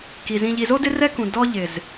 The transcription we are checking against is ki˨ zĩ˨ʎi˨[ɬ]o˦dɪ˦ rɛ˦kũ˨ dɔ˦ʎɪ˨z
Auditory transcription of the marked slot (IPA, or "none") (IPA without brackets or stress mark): z